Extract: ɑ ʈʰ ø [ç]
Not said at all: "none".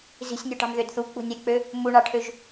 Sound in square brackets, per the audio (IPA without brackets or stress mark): ʒ